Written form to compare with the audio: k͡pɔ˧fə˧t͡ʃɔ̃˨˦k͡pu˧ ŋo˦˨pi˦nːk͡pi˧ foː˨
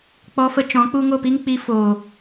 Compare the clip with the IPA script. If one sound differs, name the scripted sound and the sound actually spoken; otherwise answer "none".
nː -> ŋ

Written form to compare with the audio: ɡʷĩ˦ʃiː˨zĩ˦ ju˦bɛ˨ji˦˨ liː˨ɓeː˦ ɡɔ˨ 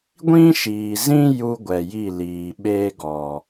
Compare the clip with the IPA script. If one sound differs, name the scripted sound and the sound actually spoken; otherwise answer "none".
b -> ɡʷ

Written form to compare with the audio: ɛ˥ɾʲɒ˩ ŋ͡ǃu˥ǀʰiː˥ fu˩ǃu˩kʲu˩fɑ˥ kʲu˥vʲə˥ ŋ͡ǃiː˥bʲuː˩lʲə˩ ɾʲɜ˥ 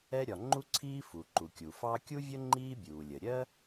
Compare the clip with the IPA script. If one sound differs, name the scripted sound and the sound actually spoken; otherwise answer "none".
none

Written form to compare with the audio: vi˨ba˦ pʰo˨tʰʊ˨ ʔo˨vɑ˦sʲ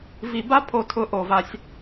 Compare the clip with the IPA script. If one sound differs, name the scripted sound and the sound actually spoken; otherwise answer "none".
ɑ˦ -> a˦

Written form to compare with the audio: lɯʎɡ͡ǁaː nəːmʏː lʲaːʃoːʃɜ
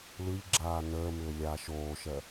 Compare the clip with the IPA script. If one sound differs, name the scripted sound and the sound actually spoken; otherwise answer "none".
none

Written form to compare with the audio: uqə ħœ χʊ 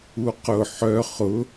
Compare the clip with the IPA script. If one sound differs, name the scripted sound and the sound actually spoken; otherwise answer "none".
ə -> ʊ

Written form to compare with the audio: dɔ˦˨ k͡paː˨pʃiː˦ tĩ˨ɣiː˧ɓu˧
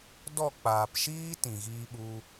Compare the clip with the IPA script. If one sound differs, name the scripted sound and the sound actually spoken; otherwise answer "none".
none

